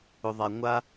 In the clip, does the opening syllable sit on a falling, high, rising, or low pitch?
low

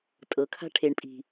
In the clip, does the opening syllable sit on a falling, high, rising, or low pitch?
low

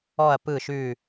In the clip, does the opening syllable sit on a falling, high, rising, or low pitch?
low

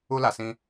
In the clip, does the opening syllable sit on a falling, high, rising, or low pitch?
high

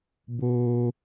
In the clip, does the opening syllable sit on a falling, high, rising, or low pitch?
high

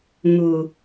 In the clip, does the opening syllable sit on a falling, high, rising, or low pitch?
low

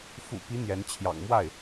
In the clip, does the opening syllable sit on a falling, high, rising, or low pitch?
low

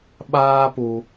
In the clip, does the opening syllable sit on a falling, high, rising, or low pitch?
high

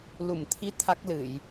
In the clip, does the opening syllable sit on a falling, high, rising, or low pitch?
low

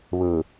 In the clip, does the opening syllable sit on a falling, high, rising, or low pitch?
low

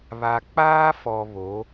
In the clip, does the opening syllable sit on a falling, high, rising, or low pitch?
low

